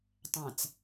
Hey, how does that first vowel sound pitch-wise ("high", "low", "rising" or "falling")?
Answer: low